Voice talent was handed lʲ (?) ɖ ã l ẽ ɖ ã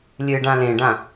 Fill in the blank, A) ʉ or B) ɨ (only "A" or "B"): B